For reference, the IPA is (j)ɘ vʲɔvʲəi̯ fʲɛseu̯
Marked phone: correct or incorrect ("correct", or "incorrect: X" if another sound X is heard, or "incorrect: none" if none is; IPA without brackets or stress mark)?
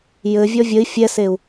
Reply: correct